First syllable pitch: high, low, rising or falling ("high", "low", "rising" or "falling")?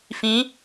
rising